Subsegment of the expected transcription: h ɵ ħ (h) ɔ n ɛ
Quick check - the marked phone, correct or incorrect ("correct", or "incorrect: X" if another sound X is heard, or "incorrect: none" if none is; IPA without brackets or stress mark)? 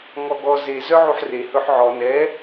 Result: incorrect: ʕ